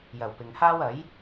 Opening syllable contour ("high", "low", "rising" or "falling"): low